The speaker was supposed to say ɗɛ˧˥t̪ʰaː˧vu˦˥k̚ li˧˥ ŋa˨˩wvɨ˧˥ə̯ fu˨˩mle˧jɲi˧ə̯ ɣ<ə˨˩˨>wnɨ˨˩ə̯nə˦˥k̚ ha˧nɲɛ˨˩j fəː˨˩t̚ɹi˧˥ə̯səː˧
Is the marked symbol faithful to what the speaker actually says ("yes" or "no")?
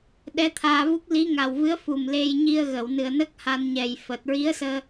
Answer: yes